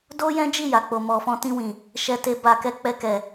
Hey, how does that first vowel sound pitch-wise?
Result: high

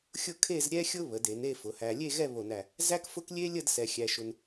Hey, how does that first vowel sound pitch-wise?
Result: falling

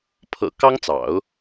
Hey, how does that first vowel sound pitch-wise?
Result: low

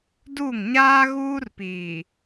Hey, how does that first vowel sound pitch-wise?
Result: falling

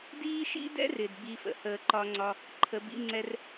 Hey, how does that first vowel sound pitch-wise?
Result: high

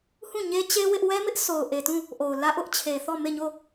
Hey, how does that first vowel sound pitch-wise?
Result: falling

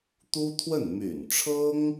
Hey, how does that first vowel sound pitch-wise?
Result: high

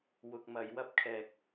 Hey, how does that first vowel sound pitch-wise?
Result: low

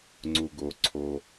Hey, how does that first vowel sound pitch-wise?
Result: low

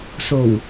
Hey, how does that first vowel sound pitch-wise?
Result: low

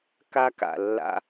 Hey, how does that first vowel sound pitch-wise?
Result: high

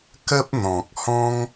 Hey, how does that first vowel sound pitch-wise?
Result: high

